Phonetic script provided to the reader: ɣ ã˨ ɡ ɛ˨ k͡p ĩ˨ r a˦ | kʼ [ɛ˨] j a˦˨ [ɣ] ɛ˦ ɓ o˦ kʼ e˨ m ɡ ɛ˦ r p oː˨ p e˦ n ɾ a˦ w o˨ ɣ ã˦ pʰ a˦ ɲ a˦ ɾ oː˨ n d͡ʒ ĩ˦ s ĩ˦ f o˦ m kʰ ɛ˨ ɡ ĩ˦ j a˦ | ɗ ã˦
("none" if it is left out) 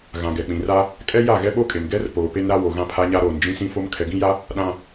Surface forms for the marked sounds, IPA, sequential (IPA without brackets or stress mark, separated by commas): ɛ˦, ɣ